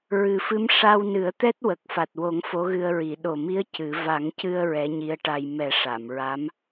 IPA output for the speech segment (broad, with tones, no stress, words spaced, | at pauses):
ɹɨ˨˩fɨ˧˥m ʂa˧wnɨ˨˩˦ə̯t̪ɛ˦˥t̚ wə˨˩k̚fa˨˩t̚wo˨˩˦ŋ fo˧˥ɣɨ˧ə̯ɹi˨˩˦ ɗo˨˩mi˧˥ə̯ cɨ˨˩˦ va˨˩˦ŋcɨ˧ə̯ ɹɛ˧˥ɲi˧˥ə̯ʈa˧j mɛ˨˩˦ʂa˨˩˨mɹa˧˥m